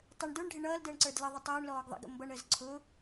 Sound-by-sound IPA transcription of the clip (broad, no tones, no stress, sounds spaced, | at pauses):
tˤ ə ɳ d ə˞ ɳ ɖʱ ɪ ɳ ʌː l d əː ɳ ǀ ə˞ d l ə ðˤ ə tˤ ʊː ɳ l ɔː ɡ ðˤ ə̰ ɡ ə̰ m b ʌ ɳ əː z ǀʰ ʊ